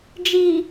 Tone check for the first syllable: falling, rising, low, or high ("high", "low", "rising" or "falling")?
low